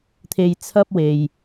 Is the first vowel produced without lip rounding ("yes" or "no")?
yes